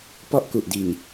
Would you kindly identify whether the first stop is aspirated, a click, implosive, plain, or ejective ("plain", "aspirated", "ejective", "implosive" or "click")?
plain